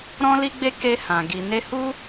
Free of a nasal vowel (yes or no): no